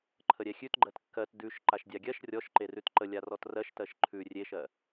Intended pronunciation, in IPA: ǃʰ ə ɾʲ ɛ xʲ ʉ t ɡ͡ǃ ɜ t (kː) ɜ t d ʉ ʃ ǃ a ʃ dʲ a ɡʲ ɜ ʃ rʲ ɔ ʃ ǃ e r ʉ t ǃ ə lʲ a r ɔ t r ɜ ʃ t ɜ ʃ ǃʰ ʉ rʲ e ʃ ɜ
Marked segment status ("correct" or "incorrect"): correct